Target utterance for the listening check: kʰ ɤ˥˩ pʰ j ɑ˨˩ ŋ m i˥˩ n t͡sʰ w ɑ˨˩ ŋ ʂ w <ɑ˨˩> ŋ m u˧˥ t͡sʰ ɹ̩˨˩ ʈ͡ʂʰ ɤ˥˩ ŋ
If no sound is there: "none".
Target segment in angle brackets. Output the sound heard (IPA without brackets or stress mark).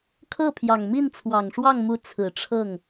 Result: ɑ˥˩